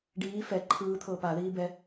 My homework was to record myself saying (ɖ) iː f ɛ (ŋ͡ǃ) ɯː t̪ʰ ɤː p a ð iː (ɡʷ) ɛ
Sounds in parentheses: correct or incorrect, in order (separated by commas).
correct, incorrect, incorrect